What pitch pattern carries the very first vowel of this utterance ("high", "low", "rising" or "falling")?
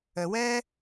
low